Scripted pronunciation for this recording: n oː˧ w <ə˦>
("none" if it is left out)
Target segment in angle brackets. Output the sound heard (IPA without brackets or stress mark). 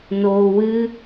ɨ˦